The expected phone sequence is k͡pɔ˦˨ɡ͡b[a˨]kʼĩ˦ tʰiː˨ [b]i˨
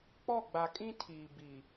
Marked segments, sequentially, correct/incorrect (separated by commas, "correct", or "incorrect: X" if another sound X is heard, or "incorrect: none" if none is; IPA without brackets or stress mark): correct, correct